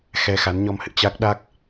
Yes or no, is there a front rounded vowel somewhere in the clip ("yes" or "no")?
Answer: no